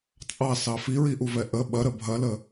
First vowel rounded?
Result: no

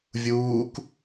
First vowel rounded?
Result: yes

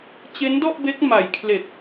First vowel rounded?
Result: no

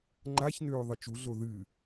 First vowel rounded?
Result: no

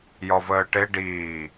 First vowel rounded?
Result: yes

